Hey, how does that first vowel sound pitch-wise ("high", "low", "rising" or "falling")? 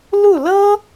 falling